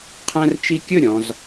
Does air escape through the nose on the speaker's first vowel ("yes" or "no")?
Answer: yes